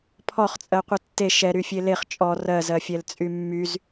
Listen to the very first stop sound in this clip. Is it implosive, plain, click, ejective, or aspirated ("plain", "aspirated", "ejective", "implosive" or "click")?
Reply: aspirated